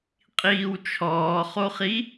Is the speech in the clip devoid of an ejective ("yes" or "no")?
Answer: no